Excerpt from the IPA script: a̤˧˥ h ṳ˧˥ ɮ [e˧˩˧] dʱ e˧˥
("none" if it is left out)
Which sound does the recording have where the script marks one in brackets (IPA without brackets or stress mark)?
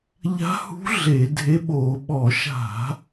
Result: e˧˩˧